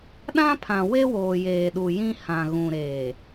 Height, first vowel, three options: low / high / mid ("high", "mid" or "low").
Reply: low